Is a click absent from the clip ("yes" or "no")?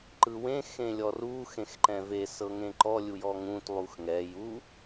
no